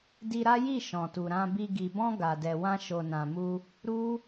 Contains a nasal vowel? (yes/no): yes